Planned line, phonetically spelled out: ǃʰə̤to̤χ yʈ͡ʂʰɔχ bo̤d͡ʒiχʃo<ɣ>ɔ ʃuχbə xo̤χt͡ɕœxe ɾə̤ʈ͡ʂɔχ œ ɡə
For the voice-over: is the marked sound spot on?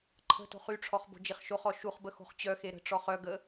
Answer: no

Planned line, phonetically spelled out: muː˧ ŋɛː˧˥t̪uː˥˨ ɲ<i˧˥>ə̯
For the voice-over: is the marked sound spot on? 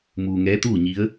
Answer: yes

